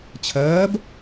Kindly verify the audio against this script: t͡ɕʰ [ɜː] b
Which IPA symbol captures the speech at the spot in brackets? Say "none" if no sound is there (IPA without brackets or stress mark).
ɜː